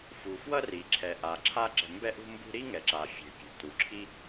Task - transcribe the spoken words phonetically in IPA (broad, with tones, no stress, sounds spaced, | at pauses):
f u˩ f w ʌ˥ r i˩ ǁʰ ɛ˩ ʔ a˩ ǁʰ a˥ ǁ ɛ̤˩ m b ɛ˥ ʔ ṳ˥ m b ṳ˥ ɾ i˥ ŋ ɛ˩ ǁ a˩ fʲ e̤˩ pʲ e̤˩ t u˩ ǁʰ i˥